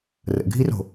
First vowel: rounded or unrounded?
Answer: unrounded